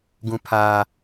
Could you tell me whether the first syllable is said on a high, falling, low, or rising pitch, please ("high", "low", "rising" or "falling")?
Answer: low